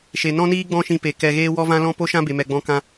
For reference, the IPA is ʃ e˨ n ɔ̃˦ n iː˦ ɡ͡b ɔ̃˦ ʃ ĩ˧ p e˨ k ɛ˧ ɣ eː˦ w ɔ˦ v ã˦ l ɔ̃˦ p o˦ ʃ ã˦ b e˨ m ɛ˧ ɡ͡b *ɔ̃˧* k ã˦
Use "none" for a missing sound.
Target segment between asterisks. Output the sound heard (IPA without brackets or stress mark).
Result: ɔ̃˦